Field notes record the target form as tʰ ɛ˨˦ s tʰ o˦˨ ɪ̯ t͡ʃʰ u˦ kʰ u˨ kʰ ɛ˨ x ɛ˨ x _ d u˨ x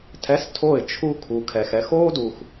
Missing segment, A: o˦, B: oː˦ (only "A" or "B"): B